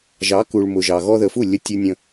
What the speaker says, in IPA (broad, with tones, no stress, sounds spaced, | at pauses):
ʒ ɑ˨˦ k u˨ ɭ m ʊ˨ ʒ ɑ˨ ɣ ɔ˧ ð ə˨ f u˦˨ lʲ ə˧ tʲ u˧ nʲ ə̃˧